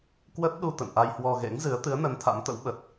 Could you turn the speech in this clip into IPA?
k w ə˦˥ t̚ ɗ u˧ t̪ ə̰˧˨ n ʔ a˧ j h w ɔ˧ ɣ ḛ˧˥ ŋ z ɨ˨˦ ə̯ t̪ ɨ˨˦ ə̯ n ə˨˦ n t̪ʰ a̰˧˥ m t̪ ə̰˧˥ w ɓ ə˨˩ t̚

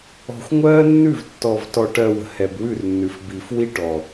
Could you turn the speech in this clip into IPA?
ɔ̤˨ xʷ ŋʷ ɜː˦ nː ʉ˦˨ v tː ɔ˨ v t ɔ˨ ʈ ɜ˨ w ə̤˨ h ɛ˨ b w ʉ˦˨ r nː ʉ˨ f b iː˨ f w i˦ ʈ ɔ˨

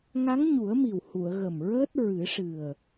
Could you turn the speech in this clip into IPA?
ŋ a˧˥ ŋ ɲ u˨˩˦ ə̯ m i˨˩ w h u˨˩˨ ə̯ ɣ ə˨˩ m ɹ əː˦˥ t̚ ɹ ɨ˨˩˦ ʂ ɨ˨˩ ə̯

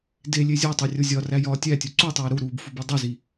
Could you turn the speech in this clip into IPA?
d e lʲ e zʲ ɒ tˤ e rʲ o zʲ ɒ r æ j ɒː tʲ æ tʲ u ǀ u tˤ e j ɾ u ɾ uː b f u b i dˤ o z i

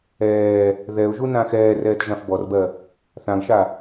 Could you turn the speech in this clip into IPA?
ɛː | ð ɛ ʊ̯ ʒ u n ã x ɛː r ɛː t ʒ ã f b ɔ r b ɜ | θ ã ɡ ʃ a

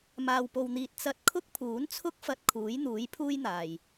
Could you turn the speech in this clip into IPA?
m aː˨ w p o˨ w n̪ iː˨ t̚ t͡s ɐ˨ t̚ kʰ ʊ˥ k̚ pʰ uː˨˥ n t͡sʰ ʊ˥ k̚ f ɐ˧ t̚ kʰ uː˨˥ j n̪ uː˨˥ j pʰ uː˥ j n̪ aː˨ j

